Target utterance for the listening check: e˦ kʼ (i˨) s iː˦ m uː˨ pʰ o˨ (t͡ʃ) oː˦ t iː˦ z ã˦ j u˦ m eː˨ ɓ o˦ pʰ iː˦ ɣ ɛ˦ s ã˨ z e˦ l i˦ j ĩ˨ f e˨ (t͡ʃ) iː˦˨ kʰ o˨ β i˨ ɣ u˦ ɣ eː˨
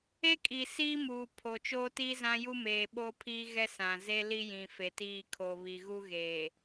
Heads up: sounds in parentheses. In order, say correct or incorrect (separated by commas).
correct, correct, incorrect